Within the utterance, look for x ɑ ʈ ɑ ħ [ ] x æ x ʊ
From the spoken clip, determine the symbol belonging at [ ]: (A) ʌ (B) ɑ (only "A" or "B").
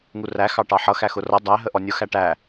A